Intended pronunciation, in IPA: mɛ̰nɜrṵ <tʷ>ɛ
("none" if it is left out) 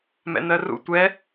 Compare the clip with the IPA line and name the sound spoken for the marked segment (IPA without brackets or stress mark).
tʷ